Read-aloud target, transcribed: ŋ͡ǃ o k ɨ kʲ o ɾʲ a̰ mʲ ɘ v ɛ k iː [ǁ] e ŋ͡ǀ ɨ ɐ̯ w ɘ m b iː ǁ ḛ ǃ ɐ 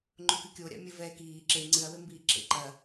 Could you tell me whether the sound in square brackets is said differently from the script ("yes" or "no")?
no